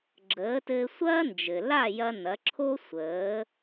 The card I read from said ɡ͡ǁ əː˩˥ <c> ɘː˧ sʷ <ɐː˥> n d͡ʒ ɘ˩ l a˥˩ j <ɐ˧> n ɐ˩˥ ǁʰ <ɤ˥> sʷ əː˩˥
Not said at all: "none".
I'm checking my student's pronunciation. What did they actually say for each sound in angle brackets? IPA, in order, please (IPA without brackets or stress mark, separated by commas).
t, ɐː˥, ɐ˧, o˥